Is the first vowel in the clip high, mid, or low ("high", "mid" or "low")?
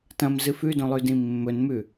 low